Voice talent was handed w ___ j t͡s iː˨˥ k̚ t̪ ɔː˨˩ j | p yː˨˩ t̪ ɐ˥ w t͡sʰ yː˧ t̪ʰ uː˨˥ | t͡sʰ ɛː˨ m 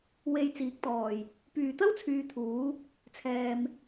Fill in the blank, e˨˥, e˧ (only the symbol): e˧